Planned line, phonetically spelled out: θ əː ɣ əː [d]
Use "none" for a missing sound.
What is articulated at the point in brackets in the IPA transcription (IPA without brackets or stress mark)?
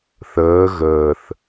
θ